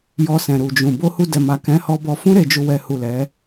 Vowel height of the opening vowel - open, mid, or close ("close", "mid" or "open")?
mid